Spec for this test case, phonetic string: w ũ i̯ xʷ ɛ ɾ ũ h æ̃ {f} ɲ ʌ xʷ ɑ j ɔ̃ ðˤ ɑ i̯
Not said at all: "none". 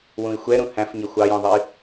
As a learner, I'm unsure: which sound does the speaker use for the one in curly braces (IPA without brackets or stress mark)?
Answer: f